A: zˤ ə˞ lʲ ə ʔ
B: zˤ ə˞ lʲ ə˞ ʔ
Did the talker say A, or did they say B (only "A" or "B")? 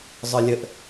A